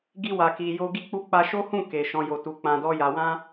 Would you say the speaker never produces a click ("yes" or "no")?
yes